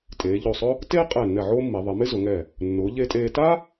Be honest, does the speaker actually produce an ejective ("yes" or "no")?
yes